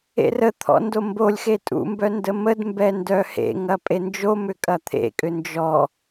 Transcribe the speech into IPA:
ḛ r ə t̪ʰ ɔ̰ n d o m b o lʲ x e tʼ ṵ m b œ n d ə m ə d m b ɛ n d œ h ḛ ŋ ɐ pʼ e n d͡ʒ o m ʏ kʼ ɐ t̪ʰ ḛ kʼ ʏ n d͡ʒ ɔ

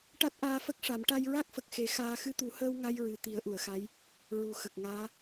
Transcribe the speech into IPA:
ʈ a˦˥ t̚ ʔ aː˧ f ə˦˥ k̚ ʂ a˨˩˦ m ʈ a˧ j ɹ a˦˥ k̚ f ə˨˩ k̚ x e˨˩˦ x aː˧ x ɨ˧ t̪ u˨˩˦ h əː˧ w ŋ a˧ j ɹ ɨ˨˩ t̪ i˨˩˦ ə̯ ʔ u˨˩˨ ə̯ x a˧˥ j | ɹ u˨˩˦ x ə˨˩ k̚ ŋ aː˧˥

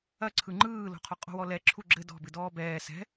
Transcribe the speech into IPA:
ɐ ǀʰ ɯ ŋ͡ǃ ɯː l o̤ qʰ ɔ qʼ o̤ w ɔ l ɛ ǁʰ u ɡ͡ǁ ɘ d ɔ̤ b ɨ d ɔː b ɛː s ɛ̤

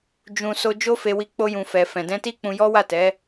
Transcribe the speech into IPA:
d͡ʒ ũ˨ s o˧ d͡ʒ o˦ f e˧ w i˧ k͡p o˦ j ũ˧ f ɛ˧ f ɛ̃˨ d ɛ̃˧ t i˦ k͡p ũ˧ j ɔ˦ w a˦˨ t ɛ˨˦

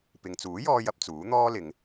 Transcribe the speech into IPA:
p ɪ˨ ŋ t͡s uː˨˥ j ɔː˧ j ɐ˨ p̚ t͡s uː˨˥ n̪ ɔː˥ l ɪ˨˧ ŋ

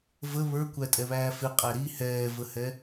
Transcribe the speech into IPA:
v ə β ə˞ kʷ æ tʼ ɛ β æː f ɪ qʼ æ ɾ i h ɛː v ə h ɛ

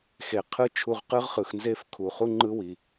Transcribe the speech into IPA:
x e˨ qʰ ɯ˦ t͡ʃʰ u˧ ʁ q ɯ˦ ʁ χ ɯ˨ x n z e˦ f kʰ u˨ χ u˦ ŋ͡ǃ ɯ˦ w i˨

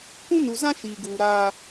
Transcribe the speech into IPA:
kʷ ũ˦ n u˨ z ã˦ ʃ iː˨ ɡ uː˨ ɾ aː˦

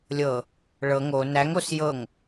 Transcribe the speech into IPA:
lʲ ɤ | ɭ ɤ ŋ o n æ ŋ o s j ɤ ŋ

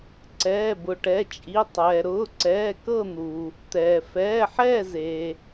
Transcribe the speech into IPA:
ǀ ɛː˩˧˩ b ʊ˩ ʈ ɛ˩˧˩ t͡ʃʼ i˩˧˩ tˤ ɛː˩ ɾ ʊː˩˧˩ ǀ ɛː˩˧˩ k ɤ˦˨ n̪ uː˩ | t̪ ɛː˩ f ɛː˩˧˩ ħ ɛː˦˨ z eː˩

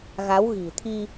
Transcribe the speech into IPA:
ɣ a˨˦ w ɣ i̤˨˩ t̪ʰ i˧

